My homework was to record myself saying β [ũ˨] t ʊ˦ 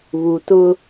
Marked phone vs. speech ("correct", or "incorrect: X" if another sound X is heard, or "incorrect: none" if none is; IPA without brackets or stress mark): incorrect: u˨